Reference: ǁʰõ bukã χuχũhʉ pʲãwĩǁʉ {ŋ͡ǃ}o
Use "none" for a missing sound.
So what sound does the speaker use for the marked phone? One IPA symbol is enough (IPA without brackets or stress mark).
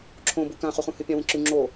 ŋ͡ǁ